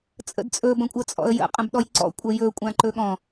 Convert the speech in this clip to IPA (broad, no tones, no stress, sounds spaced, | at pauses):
t͡sʼ ə̰ d t͡sʼ ɵ b ə̃ kʷʼ ə t͡sʼ ɔ̰ ə̯ j ə̰ qʼ ə̃ b ɗ ɔ j ǀ ɔ̰ kʷʼ ə j ɵ kʷʼ ã ǃ ɵ ɠ ɔ̃